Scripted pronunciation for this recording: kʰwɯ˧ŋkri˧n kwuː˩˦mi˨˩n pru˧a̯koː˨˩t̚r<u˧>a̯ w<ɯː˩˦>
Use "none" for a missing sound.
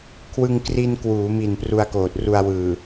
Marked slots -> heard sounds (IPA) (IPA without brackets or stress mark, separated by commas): u˧, ɯː˨˩